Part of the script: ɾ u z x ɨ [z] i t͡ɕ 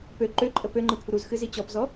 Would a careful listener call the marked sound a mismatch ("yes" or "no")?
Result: no